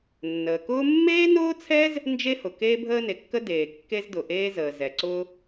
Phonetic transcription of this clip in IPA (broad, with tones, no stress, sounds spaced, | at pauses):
nː əː˩ k ʊː˥ mː eː˥ n ʊː˥ t͡sʰ ɛː˥ z | n d͡ʒ e˥ h ʊ˩ k eː˥ bʱ əː˥ n e˩ kː ə˥ d eː˩ kː e˥ z d ʊ˩ ʔ eː˥ z əː˩ z ɛ˩ ǀ ʊː˥